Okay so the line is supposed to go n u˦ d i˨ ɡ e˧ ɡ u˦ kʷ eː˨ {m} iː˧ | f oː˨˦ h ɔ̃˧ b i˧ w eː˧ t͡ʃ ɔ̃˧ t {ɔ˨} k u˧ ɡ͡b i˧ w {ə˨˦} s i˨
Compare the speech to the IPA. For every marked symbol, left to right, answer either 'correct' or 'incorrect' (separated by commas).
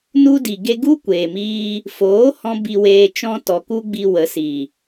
correct, correct, correct